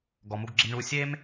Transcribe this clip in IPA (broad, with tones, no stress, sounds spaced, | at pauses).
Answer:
ɡ ɔ˩ m u˧ ɡ ɡ͡ǁ e˧ m ɳ u˧ sʲ e˥ m